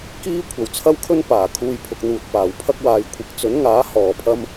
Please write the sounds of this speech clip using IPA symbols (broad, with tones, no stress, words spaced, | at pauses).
kiː˥ kʷʰɐ˨˩wt͡sʰɐ˥wkʰɵ˥n paː˨˩ kʰuː˧jpʰʊ˨k̚n̪uː˨t̚ paː˨˩wpʰɐ˥k̚ waː˨˧jkʷʰɪ˨˥k̚ t͡sɵ˨˥nŋaː˨˥ hɔː˨˩pʰɐ˧m